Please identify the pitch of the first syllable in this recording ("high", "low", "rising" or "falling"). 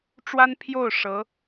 high